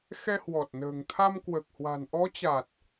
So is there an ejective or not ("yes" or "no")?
no